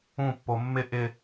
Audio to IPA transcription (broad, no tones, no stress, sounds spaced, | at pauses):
ũ pː o mː ɪ ʔ ɪ